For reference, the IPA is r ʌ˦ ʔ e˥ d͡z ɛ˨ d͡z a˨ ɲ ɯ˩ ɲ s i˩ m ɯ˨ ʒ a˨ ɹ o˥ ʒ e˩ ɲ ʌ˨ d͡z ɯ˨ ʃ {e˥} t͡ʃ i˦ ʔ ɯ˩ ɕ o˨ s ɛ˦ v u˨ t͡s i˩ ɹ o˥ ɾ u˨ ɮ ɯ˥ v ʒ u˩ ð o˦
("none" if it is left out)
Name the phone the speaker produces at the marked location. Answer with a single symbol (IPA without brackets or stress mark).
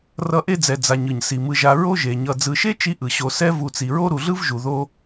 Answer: e˥